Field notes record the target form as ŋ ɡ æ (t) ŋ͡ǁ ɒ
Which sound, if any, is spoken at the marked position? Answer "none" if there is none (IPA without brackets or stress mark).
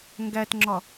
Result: t